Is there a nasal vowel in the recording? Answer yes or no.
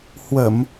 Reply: no